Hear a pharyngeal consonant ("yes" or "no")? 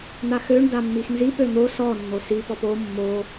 no